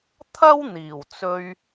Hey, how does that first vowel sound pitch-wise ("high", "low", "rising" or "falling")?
high